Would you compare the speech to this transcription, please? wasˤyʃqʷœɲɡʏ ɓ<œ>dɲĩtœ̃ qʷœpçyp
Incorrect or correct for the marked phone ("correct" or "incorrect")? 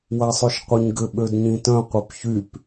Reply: incorrect